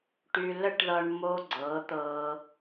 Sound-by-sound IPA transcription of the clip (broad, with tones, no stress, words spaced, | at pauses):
ʈy˧ lə˦ʈðʌ˧ɳmo˧ ɡ͡ǀɤ˨˦ t̪ɤ˧